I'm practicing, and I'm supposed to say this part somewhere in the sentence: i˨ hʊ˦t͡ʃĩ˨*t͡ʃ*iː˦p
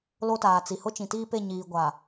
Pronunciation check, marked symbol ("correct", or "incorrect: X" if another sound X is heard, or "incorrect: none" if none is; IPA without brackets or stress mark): incorrect: t